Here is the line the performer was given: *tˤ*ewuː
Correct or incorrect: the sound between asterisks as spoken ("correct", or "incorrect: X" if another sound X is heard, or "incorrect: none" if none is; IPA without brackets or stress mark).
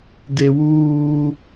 incorrect: d